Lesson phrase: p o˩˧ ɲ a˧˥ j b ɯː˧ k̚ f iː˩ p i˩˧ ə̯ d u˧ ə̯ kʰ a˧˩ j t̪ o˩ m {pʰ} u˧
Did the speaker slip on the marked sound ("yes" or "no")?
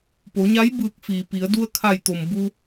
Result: yes